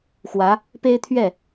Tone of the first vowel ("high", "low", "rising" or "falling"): rising